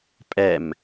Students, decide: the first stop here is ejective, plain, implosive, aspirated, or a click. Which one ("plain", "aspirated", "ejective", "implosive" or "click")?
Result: ejective